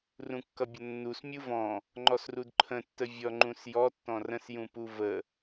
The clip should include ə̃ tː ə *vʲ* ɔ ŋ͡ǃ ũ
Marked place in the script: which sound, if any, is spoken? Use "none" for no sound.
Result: vʲ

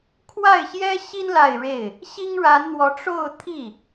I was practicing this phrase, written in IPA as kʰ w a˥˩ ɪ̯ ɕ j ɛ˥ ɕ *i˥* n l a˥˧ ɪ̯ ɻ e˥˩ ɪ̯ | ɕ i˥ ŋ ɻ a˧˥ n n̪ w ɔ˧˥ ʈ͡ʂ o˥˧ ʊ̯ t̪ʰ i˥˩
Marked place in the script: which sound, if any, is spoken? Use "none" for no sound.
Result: i˥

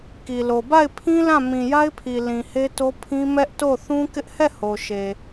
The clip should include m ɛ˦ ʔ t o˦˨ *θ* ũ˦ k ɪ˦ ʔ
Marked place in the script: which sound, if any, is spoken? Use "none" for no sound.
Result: θ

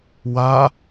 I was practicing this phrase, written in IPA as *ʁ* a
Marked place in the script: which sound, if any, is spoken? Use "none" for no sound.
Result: w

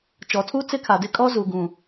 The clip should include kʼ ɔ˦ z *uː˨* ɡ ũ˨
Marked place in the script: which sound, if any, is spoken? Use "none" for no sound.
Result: u˨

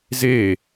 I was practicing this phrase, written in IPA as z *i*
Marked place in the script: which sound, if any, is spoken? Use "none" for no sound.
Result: e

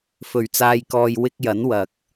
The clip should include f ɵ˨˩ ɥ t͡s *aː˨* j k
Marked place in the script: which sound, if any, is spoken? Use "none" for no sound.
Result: aː˨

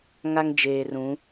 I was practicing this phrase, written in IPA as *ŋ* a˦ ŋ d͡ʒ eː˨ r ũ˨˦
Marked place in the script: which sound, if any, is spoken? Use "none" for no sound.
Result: ŋ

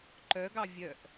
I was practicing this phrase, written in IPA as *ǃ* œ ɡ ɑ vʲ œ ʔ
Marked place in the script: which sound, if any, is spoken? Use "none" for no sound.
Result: ǃ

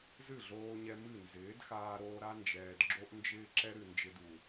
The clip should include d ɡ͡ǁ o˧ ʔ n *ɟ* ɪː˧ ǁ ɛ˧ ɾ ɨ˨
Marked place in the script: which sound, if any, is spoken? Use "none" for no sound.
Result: d͡ʒ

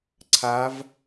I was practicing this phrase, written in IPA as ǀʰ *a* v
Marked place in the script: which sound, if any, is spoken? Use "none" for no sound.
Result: a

